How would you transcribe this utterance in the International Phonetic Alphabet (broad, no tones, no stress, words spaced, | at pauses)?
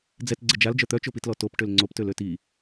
d͡zɛt ɡ͡ǀəd͡ʒald͡ʒœ t̪œt͡ʃopitlɔ top ʈølŋ͡ǀoptøl øti